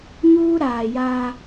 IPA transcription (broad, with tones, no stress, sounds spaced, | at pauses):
ɲ uː˦ ɾ aː˨ j aː˦